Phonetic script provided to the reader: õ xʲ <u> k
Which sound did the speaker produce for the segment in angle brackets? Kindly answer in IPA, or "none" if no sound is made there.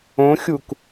u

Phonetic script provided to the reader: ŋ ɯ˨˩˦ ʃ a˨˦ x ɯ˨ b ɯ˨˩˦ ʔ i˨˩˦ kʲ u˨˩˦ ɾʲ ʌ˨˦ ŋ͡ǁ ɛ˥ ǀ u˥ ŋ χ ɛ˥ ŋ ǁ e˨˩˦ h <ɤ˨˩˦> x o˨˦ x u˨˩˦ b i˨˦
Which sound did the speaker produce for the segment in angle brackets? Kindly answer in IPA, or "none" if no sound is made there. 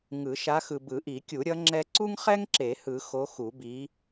ɯ˨˩˦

